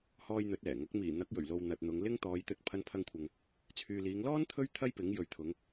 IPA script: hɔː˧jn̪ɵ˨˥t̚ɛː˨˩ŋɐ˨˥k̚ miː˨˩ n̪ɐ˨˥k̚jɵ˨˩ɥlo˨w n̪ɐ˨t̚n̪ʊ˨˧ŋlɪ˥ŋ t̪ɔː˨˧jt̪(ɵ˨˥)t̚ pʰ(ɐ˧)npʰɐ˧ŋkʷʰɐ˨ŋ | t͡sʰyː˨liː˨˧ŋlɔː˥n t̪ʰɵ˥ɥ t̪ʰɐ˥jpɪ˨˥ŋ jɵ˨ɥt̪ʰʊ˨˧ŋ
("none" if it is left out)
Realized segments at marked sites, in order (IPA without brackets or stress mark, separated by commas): ɵ˧, ɐ˧